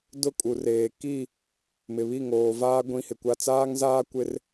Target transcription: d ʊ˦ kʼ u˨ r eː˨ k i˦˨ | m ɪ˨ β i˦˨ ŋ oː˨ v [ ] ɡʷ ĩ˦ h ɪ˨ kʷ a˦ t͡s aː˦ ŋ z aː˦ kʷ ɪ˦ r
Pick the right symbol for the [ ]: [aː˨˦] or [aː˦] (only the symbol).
aː˦